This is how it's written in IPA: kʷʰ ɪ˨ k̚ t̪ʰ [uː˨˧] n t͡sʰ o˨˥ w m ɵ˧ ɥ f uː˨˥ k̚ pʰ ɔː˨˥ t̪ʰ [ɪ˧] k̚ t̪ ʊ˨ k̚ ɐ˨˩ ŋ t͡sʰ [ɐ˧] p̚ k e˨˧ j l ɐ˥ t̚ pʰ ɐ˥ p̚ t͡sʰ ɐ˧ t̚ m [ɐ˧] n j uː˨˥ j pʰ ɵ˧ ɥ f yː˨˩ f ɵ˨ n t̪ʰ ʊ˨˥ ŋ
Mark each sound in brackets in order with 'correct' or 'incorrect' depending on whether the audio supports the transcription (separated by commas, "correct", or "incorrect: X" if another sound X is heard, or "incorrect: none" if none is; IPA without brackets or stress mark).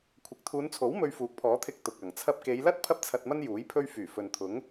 correct, correct, correct, incorrect: ɐ˥